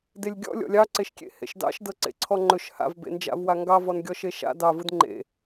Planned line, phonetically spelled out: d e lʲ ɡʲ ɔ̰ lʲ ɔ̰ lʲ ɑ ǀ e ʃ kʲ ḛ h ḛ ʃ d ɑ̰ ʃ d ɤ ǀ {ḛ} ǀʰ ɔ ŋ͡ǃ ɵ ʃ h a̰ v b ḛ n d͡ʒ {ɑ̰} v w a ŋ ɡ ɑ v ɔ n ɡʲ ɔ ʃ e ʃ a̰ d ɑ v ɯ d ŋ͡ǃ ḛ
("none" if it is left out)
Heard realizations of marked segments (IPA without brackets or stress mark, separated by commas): ḛ, a̰